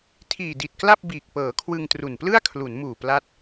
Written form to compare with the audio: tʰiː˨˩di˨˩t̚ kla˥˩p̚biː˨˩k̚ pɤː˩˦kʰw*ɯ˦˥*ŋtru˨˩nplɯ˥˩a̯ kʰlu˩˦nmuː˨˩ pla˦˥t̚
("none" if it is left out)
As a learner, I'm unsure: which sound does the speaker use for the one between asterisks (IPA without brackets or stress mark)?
ɯ˧